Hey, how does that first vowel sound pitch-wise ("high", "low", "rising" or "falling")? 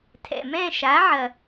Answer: low